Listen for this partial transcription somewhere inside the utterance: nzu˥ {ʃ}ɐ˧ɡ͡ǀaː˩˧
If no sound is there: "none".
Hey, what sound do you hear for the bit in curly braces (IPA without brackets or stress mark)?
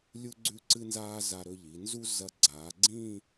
z